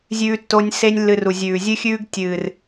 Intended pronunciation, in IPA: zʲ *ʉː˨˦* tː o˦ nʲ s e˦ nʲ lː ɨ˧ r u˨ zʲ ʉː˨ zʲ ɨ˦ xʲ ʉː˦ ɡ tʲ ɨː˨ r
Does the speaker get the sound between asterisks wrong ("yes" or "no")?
yes